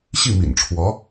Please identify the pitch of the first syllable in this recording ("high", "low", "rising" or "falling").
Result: falling